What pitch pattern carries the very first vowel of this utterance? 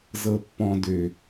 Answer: low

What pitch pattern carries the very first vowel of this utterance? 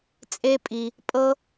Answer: high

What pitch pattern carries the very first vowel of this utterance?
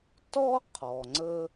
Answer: high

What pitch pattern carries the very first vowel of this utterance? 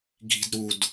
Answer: low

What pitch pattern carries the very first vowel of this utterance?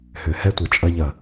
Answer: low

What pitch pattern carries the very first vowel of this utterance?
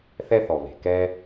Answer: high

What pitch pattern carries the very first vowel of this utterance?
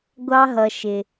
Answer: high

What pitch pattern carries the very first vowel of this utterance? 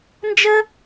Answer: high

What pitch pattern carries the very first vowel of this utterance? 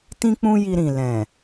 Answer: high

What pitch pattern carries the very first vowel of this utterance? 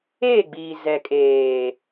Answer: falling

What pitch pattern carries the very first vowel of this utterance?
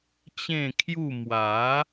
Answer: falling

